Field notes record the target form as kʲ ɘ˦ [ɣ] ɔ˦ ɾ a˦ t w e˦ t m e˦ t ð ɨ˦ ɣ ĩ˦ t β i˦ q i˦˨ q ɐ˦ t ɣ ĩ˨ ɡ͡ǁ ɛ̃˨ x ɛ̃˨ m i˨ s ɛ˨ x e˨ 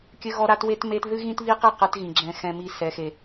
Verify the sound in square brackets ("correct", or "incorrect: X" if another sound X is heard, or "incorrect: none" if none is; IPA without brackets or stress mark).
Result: correct